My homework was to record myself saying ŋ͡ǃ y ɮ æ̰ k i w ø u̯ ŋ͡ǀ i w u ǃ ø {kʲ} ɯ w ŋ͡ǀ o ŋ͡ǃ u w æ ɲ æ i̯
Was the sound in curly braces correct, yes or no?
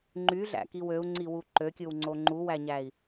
yes